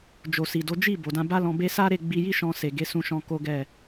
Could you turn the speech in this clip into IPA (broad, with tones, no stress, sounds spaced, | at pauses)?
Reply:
d͡ʒ o˨ s i˨ d o˨˦ d͡ʒ i˦˨ b o˨ d ã˧ b a˦ l ɔ̃˧ b e˦ s a˦ ɾ e˦˨ ɡ͡b i˧ j i˦ ʃ ɔ̃˧ s e˨ ɡ e˨˦ s ũ˧ ʃ ɔ̃˧ k o˦ ɡ ɛ˦˨